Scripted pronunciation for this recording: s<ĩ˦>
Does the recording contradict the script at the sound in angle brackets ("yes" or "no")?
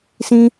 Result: no